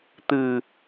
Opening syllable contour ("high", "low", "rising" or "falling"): low